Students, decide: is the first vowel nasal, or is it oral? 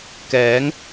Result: oral